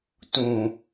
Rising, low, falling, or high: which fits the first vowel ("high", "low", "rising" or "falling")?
low